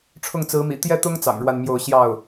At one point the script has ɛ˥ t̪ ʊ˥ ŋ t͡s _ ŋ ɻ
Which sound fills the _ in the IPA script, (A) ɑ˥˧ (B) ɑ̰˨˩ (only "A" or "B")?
B